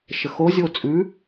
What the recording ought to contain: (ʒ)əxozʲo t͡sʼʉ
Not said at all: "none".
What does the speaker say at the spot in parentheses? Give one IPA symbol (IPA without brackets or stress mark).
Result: ʃ